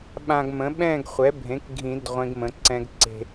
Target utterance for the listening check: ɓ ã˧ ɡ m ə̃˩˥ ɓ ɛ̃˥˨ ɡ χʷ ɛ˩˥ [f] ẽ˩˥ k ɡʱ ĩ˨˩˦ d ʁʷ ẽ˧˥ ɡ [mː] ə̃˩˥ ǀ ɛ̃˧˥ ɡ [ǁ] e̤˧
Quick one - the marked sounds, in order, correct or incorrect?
incorrect: bʱ, incorrect: m, incorrect: ǀ

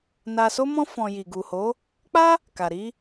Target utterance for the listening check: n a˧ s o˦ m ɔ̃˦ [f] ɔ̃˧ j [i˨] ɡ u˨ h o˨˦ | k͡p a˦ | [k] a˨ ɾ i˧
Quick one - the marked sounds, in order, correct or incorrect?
correct, correct, correct

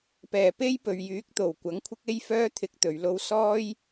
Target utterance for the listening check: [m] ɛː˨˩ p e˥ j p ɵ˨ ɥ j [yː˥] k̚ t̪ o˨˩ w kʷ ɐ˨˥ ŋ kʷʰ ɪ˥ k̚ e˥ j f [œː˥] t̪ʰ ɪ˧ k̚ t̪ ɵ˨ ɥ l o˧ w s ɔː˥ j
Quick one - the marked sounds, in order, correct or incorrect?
incorrect: p, incorrect: yː˨˥, correct

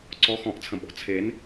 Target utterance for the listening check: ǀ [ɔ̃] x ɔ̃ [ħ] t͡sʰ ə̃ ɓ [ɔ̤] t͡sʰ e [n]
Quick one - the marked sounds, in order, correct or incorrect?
incorrect: ɔ, incorrect: ʔ, correct, correct

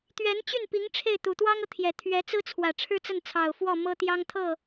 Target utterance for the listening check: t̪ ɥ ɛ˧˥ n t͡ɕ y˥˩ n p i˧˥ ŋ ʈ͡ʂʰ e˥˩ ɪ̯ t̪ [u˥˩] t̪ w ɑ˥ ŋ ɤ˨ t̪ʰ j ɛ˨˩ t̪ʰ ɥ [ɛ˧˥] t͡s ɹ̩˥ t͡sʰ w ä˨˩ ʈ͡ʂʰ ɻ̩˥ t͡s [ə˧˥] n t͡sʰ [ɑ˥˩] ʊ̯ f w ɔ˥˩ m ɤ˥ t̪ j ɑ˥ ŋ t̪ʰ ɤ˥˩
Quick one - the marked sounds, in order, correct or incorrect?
incorrect: u˨˩, correct, incorrect: ə˥˩, incorrect: ɑ˨˩

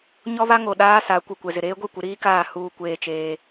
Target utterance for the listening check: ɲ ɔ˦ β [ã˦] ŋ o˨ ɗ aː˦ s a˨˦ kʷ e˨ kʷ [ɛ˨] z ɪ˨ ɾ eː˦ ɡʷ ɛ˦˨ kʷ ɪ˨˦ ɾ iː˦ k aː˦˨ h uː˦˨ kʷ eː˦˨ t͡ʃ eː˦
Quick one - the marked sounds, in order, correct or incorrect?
incorrect: a˦, correct

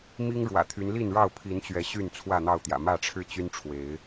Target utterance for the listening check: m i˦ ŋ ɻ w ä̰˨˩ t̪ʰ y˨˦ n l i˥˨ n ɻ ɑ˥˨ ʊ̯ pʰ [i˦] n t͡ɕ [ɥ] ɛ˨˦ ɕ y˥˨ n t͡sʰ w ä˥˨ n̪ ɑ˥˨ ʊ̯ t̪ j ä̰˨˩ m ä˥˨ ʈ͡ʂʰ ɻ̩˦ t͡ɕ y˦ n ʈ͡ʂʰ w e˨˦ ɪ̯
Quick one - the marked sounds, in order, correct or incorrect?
incorrect: i˨˦, correct

